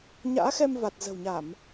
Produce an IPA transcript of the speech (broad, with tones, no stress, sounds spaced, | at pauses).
ɲ a̰ː˧˥ x ɛ˧ m v a˨˩ t̚ z ə̤˨˩ w ɲ a˧˩˨ m